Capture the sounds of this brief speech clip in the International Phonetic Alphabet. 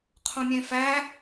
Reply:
qʰ õ mʲ ẽ f æ

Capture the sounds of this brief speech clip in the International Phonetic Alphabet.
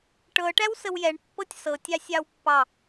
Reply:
ʈ ɤ ʈ æ w s ə w j ɛ ɳ pː ɤ tʲ s ɤ tʲ ɑ sʲ ɑ w pː ɑ

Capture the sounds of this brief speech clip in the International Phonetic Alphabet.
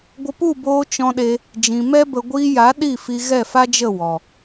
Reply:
ɡʷ ə˧ p u˦˨ b oː˧ t͡ʃ ɔ̃˧ ɗ e˧ | d͡ʒ ĩ˨ m ɛ˦ b ə˧ ɡʷ iː˧ j a˨˦ ɗ i˦˨ f i˧ ɣ ɛ˦˨ f a˦ d͡ʒ ə˦˨ w ɔ˨

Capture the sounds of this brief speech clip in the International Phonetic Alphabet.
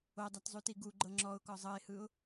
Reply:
o dˤ a t zˤ u t i ɡ u ɡ͡ǃ ɤ ŋ͡ǁ ɔ ʊ̯ k ɔ zˤ ɤ ɪ̯ h ɯ ʊ̯

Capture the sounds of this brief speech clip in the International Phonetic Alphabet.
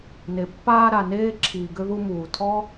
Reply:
n e˨ pː aː˧ ɾ a˨ n eː˧ ǁʰ iː˨ ɡ ʏ˧ ð u˧ m uː˨ tʰ ɔ˦

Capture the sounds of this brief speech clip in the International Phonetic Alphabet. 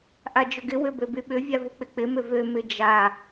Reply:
ʔ a d͡ʒ ʊ ɡ ɪ w ʏ b ø b y ɓ ʏ vʲ a v ʊ k͡p ɪ k͡p ɪ m ʏ v ø m ɪ d͡ʒ a

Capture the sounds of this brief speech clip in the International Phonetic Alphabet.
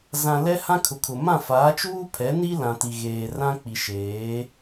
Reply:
z ã˨ l ɛ˦ h ã˦ kʰ ʊ˨ kʰ ʊ˨ m ã˦˨ f aː˨˦ t͡ʃ uː˦ pʰ ɛ˨˦ n i˦ l ã˨ t i˨ ɣ eː˨ r ã˦ k͡p i˨ ʃ eː˨˦

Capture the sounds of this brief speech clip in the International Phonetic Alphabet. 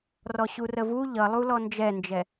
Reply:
r ɔ ɕ u r ə v u ʎ ʌ lˠ u l ɔ n d͡ʒ ɛ n d͡ʒ ɛ

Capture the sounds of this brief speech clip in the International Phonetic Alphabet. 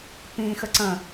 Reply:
p ĩ x ə ǀ ə̃

